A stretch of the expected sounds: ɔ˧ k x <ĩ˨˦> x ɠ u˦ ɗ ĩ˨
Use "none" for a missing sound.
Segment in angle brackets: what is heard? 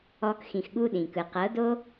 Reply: ĩ˨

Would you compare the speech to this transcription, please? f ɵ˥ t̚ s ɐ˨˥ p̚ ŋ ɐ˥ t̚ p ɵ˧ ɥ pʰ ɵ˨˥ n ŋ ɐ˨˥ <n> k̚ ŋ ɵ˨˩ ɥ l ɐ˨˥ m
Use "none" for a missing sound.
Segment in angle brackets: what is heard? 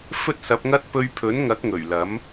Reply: none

